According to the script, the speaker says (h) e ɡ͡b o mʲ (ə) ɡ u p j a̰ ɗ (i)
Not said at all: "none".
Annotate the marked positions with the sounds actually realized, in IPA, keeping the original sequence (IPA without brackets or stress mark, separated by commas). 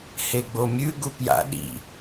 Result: h, ʉ, ḭ